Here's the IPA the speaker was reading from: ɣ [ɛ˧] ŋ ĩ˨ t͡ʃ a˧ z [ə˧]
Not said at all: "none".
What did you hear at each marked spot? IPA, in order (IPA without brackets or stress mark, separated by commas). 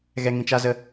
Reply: ɛ˧, ə˧